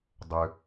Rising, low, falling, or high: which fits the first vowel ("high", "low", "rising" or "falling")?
low